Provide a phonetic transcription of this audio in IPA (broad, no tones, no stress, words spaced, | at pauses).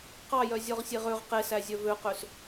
qɑjœ zʲɔʁsʲeʁøʁ qesæzʲœ vøqøs